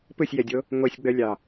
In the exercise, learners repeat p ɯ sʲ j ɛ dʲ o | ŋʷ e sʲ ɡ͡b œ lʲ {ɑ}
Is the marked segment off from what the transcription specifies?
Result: no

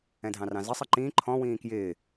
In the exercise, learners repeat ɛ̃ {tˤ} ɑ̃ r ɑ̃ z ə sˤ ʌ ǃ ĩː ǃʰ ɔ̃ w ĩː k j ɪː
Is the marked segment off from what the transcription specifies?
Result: yes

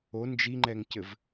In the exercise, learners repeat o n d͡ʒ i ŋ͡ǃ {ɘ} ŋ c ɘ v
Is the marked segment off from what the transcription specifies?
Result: yes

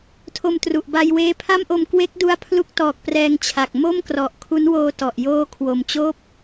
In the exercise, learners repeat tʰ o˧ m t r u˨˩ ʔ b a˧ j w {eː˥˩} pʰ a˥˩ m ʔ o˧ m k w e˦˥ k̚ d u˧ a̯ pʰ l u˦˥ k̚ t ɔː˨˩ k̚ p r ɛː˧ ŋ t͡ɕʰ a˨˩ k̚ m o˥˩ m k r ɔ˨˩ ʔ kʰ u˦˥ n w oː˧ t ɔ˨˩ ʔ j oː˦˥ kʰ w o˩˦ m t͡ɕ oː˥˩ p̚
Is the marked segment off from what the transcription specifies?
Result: yes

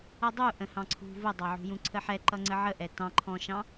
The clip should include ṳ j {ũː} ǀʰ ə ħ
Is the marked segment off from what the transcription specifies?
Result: yes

